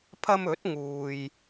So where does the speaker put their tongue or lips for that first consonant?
lips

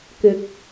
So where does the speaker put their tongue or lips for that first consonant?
velum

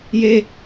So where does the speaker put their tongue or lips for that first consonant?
palate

